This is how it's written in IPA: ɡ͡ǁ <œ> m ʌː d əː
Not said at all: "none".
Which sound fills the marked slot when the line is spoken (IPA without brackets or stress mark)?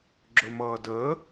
ɵ